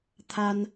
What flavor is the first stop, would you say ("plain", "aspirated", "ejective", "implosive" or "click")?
aspirated